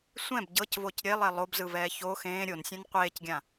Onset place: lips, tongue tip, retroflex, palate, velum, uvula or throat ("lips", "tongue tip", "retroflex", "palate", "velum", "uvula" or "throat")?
tongue tip